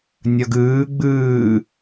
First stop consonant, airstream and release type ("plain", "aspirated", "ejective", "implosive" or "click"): plain